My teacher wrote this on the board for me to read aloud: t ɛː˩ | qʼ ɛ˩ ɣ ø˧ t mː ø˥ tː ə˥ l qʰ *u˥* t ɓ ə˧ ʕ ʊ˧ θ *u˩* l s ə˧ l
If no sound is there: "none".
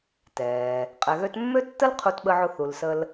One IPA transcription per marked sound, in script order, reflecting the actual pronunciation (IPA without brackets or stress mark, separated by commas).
u˧, u˩